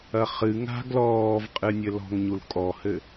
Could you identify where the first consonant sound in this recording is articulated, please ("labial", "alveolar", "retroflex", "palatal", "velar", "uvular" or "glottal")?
uvular